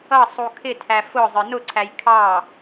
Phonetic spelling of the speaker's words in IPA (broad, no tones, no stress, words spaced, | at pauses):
ʌ sˤukʰɪtʰæ fʊ zˤə˞nʊǀʰæj kʰɑ